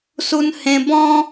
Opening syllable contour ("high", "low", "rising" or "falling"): high